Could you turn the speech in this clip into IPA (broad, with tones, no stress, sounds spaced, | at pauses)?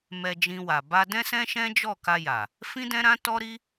m ɛ˧ d͡ʒ ĩ˧ w a˨ b a˧ d ɛ̃˦ s ɛ̃˦ ʃ ɛ̃˦ d͡ʒ ɔ˦˨ k a˧ j a˨ | f ĩ˦ d ɛ̃˦ ɾ ã˦ t ɔ˦ ɾ i˦